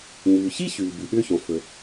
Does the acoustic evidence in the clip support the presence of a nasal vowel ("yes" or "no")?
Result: yes